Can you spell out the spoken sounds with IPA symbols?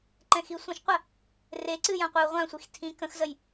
ǃ ɛ̃ x i sʷ ə̃ ʃ qʷ ə | r e ǀ ɨ j ã qʷ ɨ u̯ ʁʷ ã sʷ i x tʰ ĩ k ə̃ x z ə j

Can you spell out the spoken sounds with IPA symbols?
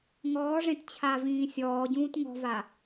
ŋ ɔː ʐ ẽ t t͡ɕʰ a v ĩː sʲ ɔː ɟ ũː t ŋ ɔ̤ v a

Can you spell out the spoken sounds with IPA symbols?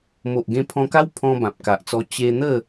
m o˨ ʔ ɡ ẽ˧ pʰ ɔ̃˧ k a˦ w pʰ ɔ̃˧ b ã˨ p̚ k a˨ ʔ t͡s ɔ˧ t͡ɕ e˧ n̪ ə˥˧

